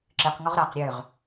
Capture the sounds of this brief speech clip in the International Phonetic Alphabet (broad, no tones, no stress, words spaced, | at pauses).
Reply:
ǁɨqŋɔʁ ɾaq ɾʲøʁ